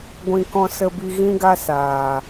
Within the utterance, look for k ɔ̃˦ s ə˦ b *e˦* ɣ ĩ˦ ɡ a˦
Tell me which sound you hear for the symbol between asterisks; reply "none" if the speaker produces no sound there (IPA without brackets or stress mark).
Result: i˦